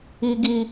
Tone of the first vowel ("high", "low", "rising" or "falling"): high